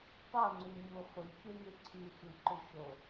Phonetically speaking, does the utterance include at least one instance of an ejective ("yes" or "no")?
no